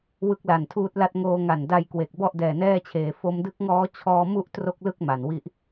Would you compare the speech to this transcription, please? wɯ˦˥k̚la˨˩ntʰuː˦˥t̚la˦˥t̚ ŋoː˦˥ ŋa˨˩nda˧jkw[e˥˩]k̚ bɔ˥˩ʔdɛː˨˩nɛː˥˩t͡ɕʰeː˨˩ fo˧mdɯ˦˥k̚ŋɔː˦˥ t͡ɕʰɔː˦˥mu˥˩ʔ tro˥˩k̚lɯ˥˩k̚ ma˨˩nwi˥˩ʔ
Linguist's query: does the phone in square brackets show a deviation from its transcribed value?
yes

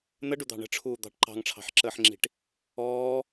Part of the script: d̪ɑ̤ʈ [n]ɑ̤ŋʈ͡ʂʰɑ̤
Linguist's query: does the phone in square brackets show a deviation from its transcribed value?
yes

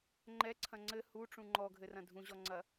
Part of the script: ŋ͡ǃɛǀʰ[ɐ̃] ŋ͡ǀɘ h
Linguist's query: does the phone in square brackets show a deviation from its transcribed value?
no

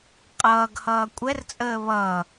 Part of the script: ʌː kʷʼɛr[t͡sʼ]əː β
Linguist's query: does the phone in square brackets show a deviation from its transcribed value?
no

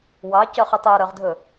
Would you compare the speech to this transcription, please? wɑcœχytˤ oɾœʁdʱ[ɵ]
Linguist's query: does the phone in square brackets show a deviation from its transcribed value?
no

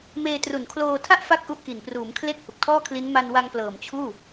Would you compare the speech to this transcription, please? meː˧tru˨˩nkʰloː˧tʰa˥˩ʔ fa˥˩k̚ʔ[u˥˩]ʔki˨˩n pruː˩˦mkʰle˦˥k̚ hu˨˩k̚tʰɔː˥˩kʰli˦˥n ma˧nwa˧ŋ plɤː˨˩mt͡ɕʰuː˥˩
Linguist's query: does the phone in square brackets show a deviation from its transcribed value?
yes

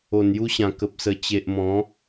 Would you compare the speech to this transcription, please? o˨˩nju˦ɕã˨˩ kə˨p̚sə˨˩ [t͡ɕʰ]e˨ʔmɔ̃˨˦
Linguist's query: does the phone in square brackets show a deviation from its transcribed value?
yes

